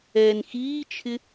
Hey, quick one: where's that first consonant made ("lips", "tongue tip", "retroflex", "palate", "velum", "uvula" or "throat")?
tongue tip